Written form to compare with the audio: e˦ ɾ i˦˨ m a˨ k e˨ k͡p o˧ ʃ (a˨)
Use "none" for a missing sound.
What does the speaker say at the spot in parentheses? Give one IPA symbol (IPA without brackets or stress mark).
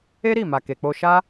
a˦